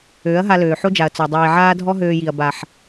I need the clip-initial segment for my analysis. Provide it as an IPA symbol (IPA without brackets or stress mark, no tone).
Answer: øː